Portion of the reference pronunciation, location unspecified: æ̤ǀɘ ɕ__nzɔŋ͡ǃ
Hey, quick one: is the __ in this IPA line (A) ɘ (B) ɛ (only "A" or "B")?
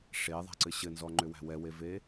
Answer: A